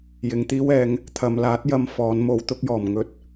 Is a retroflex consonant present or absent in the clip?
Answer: absent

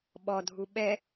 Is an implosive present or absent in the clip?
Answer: present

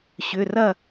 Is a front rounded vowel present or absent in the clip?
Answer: present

